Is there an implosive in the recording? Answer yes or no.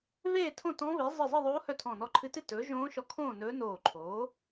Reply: no